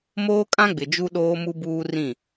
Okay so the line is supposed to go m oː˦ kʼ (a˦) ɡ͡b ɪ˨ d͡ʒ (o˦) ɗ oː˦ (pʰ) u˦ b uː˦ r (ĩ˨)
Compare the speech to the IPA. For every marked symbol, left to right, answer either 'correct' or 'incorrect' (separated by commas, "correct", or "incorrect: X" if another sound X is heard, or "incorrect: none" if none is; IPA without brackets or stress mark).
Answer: incorrect: ã˦, incorrect: u˦, incorrect: m, incorrect: ĩ˦˨